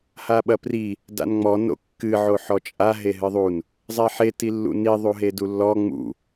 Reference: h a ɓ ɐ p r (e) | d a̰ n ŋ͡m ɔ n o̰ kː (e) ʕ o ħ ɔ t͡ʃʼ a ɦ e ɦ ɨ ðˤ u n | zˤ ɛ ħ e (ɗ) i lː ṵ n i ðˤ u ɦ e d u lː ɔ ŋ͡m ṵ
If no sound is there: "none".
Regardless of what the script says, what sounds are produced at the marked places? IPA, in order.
i, ɨ, t

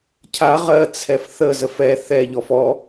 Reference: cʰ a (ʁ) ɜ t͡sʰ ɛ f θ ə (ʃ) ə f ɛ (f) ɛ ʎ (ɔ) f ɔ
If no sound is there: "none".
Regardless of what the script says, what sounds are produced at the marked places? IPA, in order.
ʁ, z, θ, ɔ

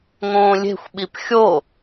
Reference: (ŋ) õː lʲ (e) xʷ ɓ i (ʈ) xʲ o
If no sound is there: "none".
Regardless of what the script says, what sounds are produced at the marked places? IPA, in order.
ŋ, e̤, p

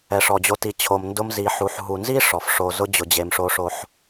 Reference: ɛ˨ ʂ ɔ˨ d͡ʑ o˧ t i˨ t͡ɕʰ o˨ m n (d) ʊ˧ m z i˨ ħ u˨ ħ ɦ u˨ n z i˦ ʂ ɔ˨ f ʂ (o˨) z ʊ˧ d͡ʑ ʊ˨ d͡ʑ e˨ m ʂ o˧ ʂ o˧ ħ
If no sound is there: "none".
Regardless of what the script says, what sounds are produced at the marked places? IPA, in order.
d, o˨

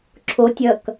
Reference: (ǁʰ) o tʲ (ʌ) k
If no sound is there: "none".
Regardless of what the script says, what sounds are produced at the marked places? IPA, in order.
ǁʰ, ʌ

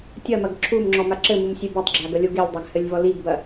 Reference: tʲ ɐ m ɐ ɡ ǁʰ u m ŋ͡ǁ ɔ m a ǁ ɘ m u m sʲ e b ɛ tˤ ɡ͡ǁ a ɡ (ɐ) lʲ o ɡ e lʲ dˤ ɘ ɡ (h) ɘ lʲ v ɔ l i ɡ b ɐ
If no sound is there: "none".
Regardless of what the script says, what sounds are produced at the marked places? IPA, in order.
ɐ, h

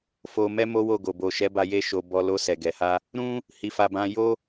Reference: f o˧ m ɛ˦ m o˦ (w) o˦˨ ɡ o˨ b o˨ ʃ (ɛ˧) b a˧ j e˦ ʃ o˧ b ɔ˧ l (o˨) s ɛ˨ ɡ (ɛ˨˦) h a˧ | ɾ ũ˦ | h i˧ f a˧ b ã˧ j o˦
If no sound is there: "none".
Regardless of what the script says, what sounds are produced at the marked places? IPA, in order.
w, ɛ˨˦, o˧, ɛ˨

